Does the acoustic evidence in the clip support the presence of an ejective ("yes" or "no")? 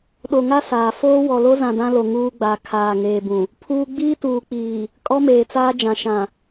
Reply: yes